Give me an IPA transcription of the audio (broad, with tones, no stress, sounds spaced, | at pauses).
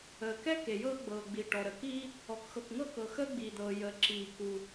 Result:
əː˩ k ɛ˥ k e˩ j ɤː˥ ɡ͡b ɤː˩ ɡ͡b i˩ ʈ ɔ˩ ɾ ə˩ k iː˥ | ɔ˩ k x ɤ˩ k ŋ ɤ˥ k ɤ˩ x əː˥ ɡ͡b iː˩ d̪ ɤː˩ j əː˩ ǁ iː˩ k u˩